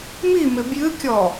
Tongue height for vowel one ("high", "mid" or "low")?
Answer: high